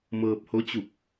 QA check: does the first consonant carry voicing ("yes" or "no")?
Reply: yes